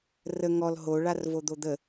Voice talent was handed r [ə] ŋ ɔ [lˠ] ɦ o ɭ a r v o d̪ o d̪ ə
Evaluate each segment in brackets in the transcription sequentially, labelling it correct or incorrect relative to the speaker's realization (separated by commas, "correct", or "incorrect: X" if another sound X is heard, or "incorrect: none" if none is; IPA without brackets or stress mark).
correct, incorrect: l